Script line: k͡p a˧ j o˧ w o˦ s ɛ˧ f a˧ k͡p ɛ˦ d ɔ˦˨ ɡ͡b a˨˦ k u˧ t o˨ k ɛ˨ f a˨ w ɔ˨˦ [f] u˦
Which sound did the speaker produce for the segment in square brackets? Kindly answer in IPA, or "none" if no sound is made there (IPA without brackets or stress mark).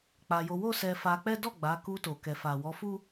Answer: f